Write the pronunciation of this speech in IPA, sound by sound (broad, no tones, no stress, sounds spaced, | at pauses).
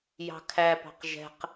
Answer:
j ɑ̤ kʰ æ p ɑ̤ q ʒ ɛ̤ q